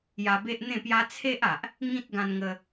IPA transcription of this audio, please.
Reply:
j a˧ b e˦ ʔ n̪ ẽ˥˧ p j a˦ t͡sʰ e˦ ʔ a˨ ʔ | ŋ ĩ˦ t̚ ɡ ã˧ n ŋ ə˧

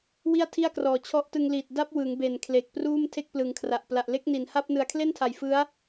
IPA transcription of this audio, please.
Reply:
w i˥˩ a̯ tʰ i˥˩ a̯ k r ɔː˨˩ t͡ɕʰ ɔ˦˥ ʔ t ɯ˧ ŋ l i˨˩ t̚ d a˦˥ p̚ w ɯ˩˦ ŋ b e˨˩ n kʰ l e˨˩ k̚ p r uː˥˩ m tʰ e˥˩ k̚ p l ɯ˩˦ ŋ kʰ r a˨˩ ʔ p l a˨˩ ʔ l e˦˥ k̚ n i˩˦ n h a˥˩ p̚ n ɯ˨˩ a̯ kʰ l e˥˩ n tʰ a˨˩ j f ɯ˦˥ a̯

